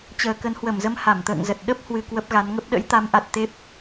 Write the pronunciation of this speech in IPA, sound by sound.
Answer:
t͡ɕəː˨˩kə˨˦nhwə˧˩mzə˧m ha˧˩mt̪ə̰ː˧˨ŋzə˨˩t̚ ɗə˦˥p̚hwɨ˨˩ kwə˦˥p̚ɣa˨˦nŋə˦˥p̚ ɗə̰˧˥jt̪a˨˦mʔa˨˩t̚ t̪e˦˥p̚

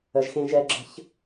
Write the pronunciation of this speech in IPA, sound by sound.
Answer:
əʒxẽʒɛɡ͡ǁə̤ç

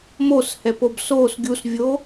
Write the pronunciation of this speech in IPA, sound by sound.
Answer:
moshɛpob sos ɡʲusvʲo

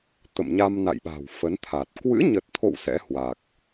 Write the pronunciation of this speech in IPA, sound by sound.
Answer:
t̪ə̰˧˨mɲa˧mna̰˧˨jɓa̤˨˩w fə˨˦nt̪ʰa˨˩t̚ kwɨ̰˧˥ɲə˨˩t̚t̪ʰo̰˧˨w sɛ̰˧˥hwa˨˩k̚

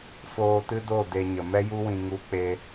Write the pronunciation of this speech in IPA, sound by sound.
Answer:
foː˧tɨ˦do˦˨ de˧ɲə˨ mɛ˦ju˦wĩ˧ ŋu˦k͡pe˦

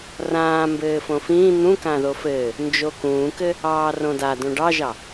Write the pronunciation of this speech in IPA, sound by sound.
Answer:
rãː mbɘːfõfĩː n̪ũkã ðofɘː | nd͡ʒokũːkɘ | ɑːrõda dõɖɑʒɑ

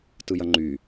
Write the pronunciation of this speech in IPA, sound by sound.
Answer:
tɯjɐŋ͡ǃy

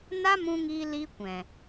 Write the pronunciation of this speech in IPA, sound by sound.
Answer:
na˦mũ˧ŋiː˧ li˧ kʷɛ̃˨

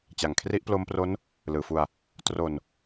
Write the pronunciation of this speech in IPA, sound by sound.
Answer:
t͡ɕa˨˩ŋkʰri˦˥ʔplo˦˥mpro˦˥n | lɯː˨˩fu˧a̯ | tro˧n

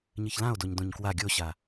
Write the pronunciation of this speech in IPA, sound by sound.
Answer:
ɲɨçlão̯doɲ dõɲkwa ɡʲoɕa

